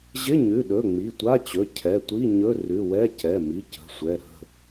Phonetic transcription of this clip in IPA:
ʑ ɪ˧˥˧ ɲ ʉ˩˧˩ ɗ ɵ˩˧˩ ŋ͡m i˩˧˩ tʷ a˧˥˧ t͡ɕ ɵ˩˧˩ cʰ ɛ˩˧˩ tʷ i˧˥˧ ɲ ɵ˧˥˧ r ʉ˩˧˩ w ɛ˧˥˧ c ɛ˩˧˩ m i˩˧˩ c ə̤˩˧˩ sʷ ɛ˩˧˩ ɾ ə̤˩˧˩

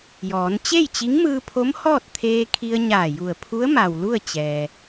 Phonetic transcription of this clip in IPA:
j ɔː˩˧ n t͡ɕ e˥˨ j t͡ɕ i˧˥ ŋ m ɯː˧ pʰ o˧˥ m h ɔː˥˨ t̚ t̪ʰ eː˧ kʰ i˧ ə̯ ɲ aː˧˩ j u˧˩ ə̯ pʰ u˧˥ ə̯ m a˩ w l u˥˨ ə̯ t͡ɕ ɛː˩

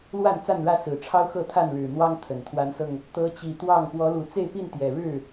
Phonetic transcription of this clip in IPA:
l w a˥˨ n t͡s a˥˨ n ɻ ä˥˨ s ɹ̩˨˩ ʈ͡ʂʰ ɑ˦ ʊ̯ x ɤ˥˨ t̪ʰ a˥˨ n ɻ ɻ̩˨˩ n̪ w ɑ˦ ŋ t̪ʰ ə˨˩ n t̪ʰ w a˨˦ n s ɤ˧ ŋ | t̪ ɤ˨˦ t͡ɕ i˨˩ t̪ w ɑ˥˨ ŋ p w ɔ˨˦ l u˨˩ t͡s e˥˨ ɪ̯ p i˥˨ n t̪ j ɛ˨˩ ɻ ɻ̩˥˨

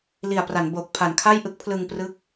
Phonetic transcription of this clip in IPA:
l i˨˩ a̯ p r a˩˦ n b o˨˩ k̚ pʰ a˩˦ n kʰ a˥˩ j ʔ ɯ˦˥ k̚ pʰ l ɯ˧ ŋ p r ɯ˦˥ k̚

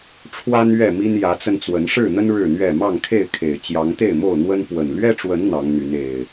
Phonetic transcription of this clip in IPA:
ʈ͡ʂʰ w a˦ n ɥ ɛ˥˨ m i˦ n j ä˨˦ t͡s ə˧ n t͡s w ə˨˦ n ʂ ɻ̩˥˨ n̪ ə˦ n ɻ ɻ̩˥˨ n̪ ɥ ɛ˥˨ m ɑ˥˨ ŋ kʰ e˥˨ ɪ̯ kʰ e˨˩ ɪ̯ t͡ɕ j ɑ˨˦ ŋ t̪ e˥˨ ɪ̯ m o˥˨ ʊ̯ n̪ w ə˦ n p w ə˨˩ n l ɥ ɛ˦ ʈ͡ʂ w ə˨˦ n n̪ ɑ˨˦ ŋ n̪ y˨˦ n e˨˩ ɪ̯

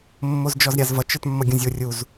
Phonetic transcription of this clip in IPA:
mː o z d͡ʒ ɔ z ɾʲ a z v ʌ t͡ʃ ə˞ t mː ʌ ɡʲ ũ zʲ o rʲ u z

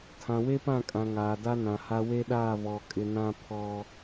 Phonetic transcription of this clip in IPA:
tʰ ã˨ w e˦ p ã˦˨ kʼ ã˨ ŋ aː˨ d a˦ n ã˨ h a˦ w e˦ ɗ aː˦˨ β ɔ˨ kʼ ɪ˨ n ã˦ pʰ ɔ˦

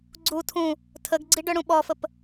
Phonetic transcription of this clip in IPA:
ɡ͡ǀ u tʰ ũ | tʰ ə ɡ ɡ͡ǀ i ɖ œ ɽ ũ ɓ ɔ f ə p

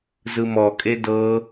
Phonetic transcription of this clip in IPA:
z ɯ m ɔ kʼ e d ɤ

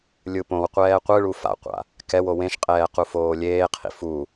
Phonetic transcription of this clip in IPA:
lʲ ɯ p õ w qʷ ɛː qʷ ɯ ɭ u f a̰ qʷ a̰ | k ɛ w o w ẽ ʃ qʼ ɛː q u f oː lʲ eː qʰ ḭ f u

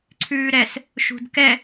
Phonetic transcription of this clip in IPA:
ǀʰ ʉː ɾ ɛ s | ʃ ṳ d k ɛ

